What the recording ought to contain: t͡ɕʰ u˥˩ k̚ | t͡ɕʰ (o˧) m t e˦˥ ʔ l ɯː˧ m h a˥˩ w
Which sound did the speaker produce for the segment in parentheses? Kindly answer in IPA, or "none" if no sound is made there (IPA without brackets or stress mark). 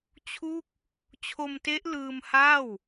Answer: o˧